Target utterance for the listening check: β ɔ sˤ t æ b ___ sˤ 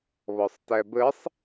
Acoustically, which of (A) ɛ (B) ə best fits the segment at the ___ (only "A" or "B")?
B